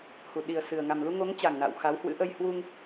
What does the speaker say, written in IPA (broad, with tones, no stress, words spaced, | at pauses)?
hu˧˩ɗi˨˩ə̯sɨ˨˩ə̯ ŋa˨˩mlu˧ŋo˨˦ŋ t͡ɕa˨˩ŋna̰˧˨w xa˨˦whwɨ̰˧˥ ʔə˧jhwu˧ŋ